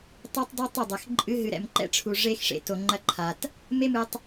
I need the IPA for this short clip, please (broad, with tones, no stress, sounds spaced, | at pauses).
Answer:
tˤ ɛ˦ tˤ dˤ ɘ˦ tˤ ɛ˦˨ dˤ ɛ˨ x ǃʼ ɨ˧ ɦ ɨ˨ ɾ ɛ̰˨ m ǃ ɛ̰˦ ʈ͡ʂʰ u˨ ʐ e˦ x ʂ ḛ˨ t o˨ ŋ͡ǃ ɐ˦ ǃʰ a˨ t | m e˦ m ɨ˧ tˤ